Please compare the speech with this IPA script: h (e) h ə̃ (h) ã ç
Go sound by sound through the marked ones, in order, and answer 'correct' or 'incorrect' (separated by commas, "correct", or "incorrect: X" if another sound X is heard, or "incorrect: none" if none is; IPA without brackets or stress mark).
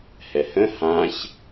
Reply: incorrect: ɛ, correct